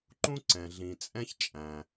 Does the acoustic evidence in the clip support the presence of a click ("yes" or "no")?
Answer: yes